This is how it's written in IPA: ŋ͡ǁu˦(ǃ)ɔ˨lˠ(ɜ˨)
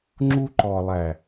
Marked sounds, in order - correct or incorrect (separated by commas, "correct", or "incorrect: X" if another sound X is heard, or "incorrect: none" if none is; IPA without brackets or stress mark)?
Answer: correct, incorrect: æ˨